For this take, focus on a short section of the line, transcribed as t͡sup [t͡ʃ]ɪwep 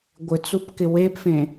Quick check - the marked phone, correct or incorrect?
incorrect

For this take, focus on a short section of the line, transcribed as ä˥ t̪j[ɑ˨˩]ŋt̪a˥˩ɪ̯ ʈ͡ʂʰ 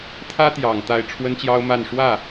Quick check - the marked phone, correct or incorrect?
correct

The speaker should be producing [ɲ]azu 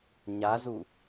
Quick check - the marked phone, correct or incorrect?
correct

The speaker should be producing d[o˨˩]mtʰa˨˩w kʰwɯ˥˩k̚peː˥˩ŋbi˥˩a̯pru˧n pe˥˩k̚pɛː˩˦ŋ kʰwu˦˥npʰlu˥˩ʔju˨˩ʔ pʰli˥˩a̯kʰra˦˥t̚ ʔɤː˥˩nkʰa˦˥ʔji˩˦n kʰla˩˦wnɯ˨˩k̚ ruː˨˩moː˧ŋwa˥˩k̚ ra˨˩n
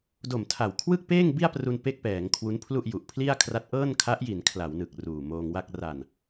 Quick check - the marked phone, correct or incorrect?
correct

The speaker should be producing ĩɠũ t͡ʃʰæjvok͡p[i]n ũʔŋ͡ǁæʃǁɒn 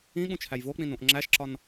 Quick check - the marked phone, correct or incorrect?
incorrect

